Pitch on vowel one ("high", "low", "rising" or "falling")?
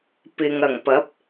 low